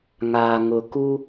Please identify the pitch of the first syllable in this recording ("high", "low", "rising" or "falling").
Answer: low